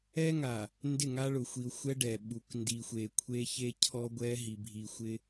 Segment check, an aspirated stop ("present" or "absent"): present